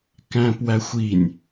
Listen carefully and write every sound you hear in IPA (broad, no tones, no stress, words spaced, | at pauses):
kæ̃ːpwæxʷinʲ